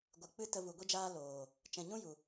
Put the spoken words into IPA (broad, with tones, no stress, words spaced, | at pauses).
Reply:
ɡʷɨ˨k͡pɨ˦ tə˧vu˨ɡʷi˦d͡ʒaː˦ loː˨ | t͡ʃɛ̃˨ɲũ˦ju˨